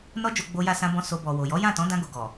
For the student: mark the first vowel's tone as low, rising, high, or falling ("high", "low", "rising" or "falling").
high